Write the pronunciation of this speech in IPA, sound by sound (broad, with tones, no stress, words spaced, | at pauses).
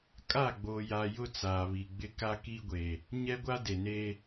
kʼa˦˨ɡ͡boː˨ja˨ jʊ˦t͡saː˨βi˨ ɡ͡bɪ˦ ka˦ki˦ɡʷe˨ | ɲɛ˦ɡʷa˦ de˨neː˦